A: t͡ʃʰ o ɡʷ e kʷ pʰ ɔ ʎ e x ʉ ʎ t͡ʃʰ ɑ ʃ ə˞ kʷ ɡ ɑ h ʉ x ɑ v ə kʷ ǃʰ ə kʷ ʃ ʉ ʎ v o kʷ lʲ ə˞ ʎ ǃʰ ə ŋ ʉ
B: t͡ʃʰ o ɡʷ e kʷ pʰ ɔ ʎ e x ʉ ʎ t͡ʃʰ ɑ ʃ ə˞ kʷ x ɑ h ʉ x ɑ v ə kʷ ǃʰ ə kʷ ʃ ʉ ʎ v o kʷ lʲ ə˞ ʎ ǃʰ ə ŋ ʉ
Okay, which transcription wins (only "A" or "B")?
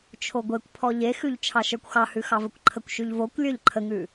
B